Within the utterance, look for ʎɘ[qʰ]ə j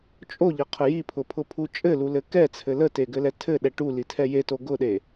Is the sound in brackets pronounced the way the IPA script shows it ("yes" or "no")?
yes